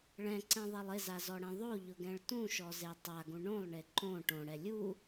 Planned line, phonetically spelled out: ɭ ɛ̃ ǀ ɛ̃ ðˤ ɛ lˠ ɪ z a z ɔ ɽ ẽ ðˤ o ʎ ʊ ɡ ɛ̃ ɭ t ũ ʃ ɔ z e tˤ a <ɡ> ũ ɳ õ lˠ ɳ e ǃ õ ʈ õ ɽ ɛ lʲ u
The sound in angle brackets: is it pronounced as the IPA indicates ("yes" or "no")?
yes